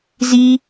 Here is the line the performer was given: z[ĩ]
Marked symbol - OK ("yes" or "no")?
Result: no